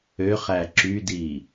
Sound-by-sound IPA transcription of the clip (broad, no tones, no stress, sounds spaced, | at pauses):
ø χ æ ǁ y d i